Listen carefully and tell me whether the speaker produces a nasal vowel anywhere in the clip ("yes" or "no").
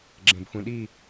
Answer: yes